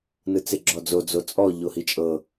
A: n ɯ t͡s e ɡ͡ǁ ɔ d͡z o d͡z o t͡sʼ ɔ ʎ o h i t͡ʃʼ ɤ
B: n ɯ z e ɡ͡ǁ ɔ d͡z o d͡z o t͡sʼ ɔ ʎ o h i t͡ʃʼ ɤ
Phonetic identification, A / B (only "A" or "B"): A